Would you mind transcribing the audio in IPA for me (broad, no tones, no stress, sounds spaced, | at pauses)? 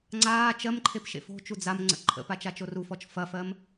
ŋ͡ǀ aː t͡ʃ ɜ m ǃʰ e p ʃ ḛ f o̤ t͡ʃ u d͡z a m ŋ͡ǀ ə̰ ǃʰ ə̰ p a t͡ʃ a t͡ʃ o r u f ɔ t͡ʃ f ɐ f ɜ m